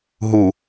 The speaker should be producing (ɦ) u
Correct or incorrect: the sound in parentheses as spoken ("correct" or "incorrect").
correct